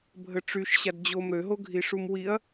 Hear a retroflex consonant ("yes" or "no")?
yes